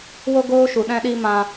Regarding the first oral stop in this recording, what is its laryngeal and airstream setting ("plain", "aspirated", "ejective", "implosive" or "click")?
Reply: plain